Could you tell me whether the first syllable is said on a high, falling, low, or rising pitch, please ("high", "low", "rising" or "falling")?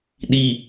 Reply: low